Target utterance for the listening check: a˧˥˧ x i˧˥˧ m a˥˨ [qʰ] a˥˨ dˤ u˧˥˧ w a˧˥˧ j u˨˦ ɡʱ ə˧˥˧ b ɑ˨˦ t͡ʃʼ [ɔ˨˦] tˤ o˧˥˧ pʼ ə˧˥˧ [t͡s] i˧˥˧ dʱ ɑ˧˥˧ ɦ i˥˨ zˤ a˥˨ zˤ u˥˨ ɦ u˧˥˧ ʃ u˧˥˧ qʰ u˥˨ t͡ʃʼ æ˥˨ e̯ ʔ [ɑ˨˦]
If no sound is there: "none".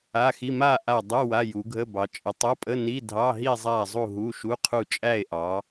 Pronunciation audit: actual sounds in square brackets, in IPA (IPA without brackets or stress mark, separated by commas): ʔ, ə˨˦, n, ɑ˨˦